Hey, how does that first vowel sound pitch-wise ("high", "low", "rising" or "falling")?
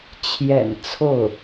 low